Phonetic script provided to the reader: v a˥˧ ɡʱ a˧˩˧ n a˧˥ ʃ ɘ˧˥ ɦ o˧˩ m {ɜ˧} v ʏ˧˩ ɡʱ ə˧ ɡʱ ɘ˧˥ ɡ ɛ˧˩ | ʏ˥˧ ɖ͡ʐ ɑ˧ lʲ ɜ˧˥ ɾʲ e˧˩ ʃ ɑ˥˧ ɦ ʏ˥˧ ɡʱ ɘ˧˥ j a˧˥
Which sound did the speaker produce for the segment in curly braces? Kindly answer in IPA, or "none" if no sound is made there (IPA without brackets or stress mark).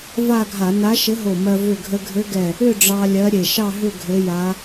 ɜ˧